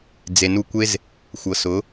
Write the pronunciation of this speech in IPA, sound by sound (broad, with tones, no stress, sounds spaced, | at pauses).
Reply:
d͡z e˨ n u˧ kʷ e˦ z | xʷ ɤ˨ s ʊ˨˦